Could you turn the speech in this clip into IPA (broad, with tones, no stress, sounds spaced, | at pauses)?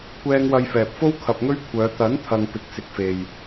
kʷ ɛː˧ ŋ w ɐ˧ j f ɛː˨ p̚ f o˥ w kʰ ɐ˧ p̚ ŋ ɵ˥ ɥ kʷʰ œː˨˧ t̪ ɐ˨˥ n t̪ʰ ɐ˨ ŋ p ɪ˨ k̚ s ɪ˨ k̚ f e˨ j